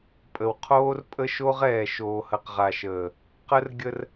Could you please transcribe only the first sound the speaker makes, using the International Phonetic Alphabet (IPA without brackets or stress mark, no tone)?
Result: pʼ